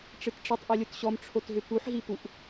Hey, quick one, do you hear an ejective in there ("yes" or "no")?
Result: no